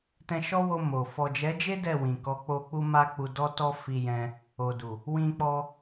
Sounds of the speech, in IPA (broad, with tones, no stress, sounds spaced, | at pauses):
t ɛ̃˧ ʃ ɔ˦ w o˧ m o˨ f ɔ˨ d͡ʒ ɛ˨˦ d͡ʒ e˦ d ɛ˦˨ w ĩ˨ k ɔ˨˦ k͡p o˧ k͡p u˦ m a˦ k͡p u˧ d ɔ˦ t ɔ˦ f i˧ j ɛ̃˧ | o˨ d u˨ | w ĩ˧ k͡p ɔ˧